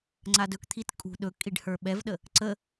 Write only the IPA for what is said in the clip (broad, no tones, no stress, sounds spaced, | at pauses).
ŋ͡ǀ a d ɵ k t̪ʰ i t kʼ ṳ ɗ ɵ kʼ i ɖ h ə˞ ɓ ɛ v ɗ ə | ǀ ə